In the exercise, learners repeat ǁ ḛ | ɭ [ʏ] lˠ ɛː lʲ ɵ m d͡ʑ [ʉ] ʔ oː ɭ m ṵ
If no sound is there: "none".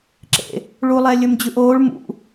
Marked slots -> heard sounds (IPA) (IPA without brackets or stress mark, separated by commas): u, ʉ